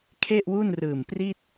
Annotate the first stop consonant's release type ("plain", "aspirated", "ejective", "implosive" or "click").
aspirated